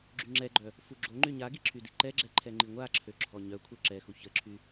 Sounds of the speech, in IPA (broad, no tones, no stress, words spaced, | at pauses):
ɡ͡ǁyŋ͡ǁɛɡ͡ǃœ | fuɡ͡ǁoŋ͡ǃy ɲaɡi ǁʰydiǃɛɡ͡ǁɛ ǃʰɛŋ͡ǃiŋʷaǁʰø ǁʰɔɲœkʷʰœ ǁɛxu çəǁʰy